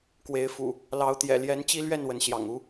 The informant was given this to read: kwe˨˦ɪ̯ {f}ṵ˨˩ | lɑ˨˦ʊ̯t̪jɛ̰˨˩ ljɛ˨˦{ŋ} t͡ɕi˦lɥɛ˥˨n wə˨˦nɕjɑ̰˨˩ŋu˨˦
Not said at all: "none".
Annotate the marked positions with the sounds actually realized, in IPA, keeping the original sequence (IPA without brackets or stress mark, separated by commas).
f, n